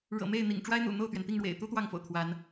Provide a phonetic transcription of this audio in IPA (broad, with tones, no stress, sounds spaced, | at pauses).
ɻ ɤ̰˨˩ m e˥˨ ɪ̯ n̪ ḭ˨˩ ŋ ʈ͡ʂ w a˦ ɪ̯ n̪ ṵ˨˩ n̪ o˥˨ ʊ̯ t̪ ɥ ɛ˩ n t̪ i˥˨ ŋ ɻ w ḛ˨˩ ɪ̯ t̪ u˦ t̪ w ɑ˥˨ ŋ f o̰˨˩ ʊ̯ t̪ʰ w a˨˦ n